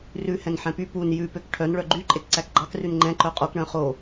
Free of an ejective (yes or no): no